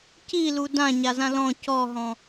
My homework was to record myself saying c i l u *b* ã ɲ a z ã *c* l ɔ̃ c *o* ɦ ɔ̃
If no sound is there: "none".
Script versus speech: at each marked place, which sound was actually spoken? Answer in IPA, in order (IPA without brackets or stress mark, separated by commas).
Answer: d, none, ɔ